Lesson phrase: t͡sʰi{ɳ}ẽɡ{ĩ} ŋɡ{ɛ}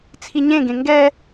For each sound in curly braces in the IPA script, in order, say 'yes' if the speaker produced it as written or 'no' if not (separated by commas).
no, no, yes